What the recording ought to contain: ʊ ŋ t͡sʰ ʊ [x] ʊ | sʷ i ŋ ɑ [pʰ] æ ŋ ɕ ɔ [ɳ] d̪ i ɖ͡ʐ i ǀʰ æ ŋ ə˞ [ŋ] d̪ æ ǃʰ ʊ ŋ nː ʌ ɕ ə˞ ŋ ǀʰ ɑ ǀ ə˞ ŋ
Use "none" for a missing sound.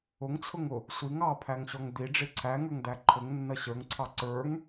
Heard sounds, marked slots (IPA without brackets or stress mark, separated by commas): ŋ, pʰ, ŋ, ŋ